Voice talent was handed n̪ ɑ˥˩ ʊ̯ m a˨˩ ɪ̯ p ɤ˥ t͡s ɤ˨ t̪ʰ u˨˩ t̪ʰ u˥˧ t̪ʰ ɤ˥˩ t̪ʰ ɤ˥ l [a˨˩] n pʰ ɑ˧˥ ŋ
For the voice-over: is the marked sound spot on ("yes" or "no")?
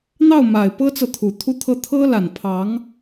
yes